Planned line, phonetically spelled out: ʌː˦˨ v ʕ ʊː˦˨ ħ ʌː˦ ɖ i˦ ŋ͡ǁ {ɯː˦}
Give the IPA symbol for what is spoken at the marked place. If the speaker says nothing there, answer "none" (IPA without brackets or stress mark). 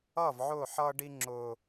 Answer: ʊː˦